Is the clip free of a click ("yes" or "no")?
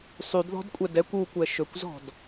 yes